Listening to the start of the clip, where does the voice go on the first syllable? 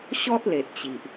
high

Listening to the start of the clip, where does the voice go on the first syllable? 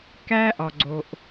high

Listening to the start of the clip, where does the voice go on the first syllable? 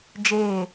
falling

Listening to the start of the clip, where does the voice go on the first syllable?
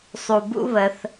low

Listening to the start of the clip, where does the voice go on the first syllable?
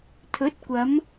rising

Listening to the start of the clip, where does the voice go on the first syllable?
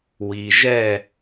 low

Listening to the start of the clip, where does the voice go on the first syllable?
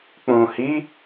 low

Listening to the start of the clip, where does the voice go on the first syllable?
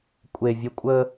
low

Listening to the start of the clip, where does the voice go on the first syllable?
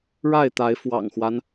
falling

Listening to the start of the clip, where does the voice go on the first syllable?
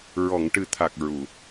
low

